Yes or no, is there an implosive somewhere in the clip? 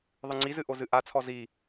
no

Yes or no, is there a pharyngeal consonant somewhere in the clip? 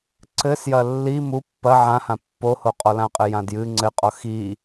yes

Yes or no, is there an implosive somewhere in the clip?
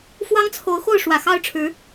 no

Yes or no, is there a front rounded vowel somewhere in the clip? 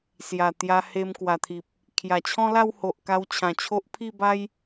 no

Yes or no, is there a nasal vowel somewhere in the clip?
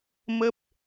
no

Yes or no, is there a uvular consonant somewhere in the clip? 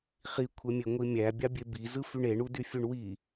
yes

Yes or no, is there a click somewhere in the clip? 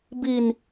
no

